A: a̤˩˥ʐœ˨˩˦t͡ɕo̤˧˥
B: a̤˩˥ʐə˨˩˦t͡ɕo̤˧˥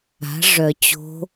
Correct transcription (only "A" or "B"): A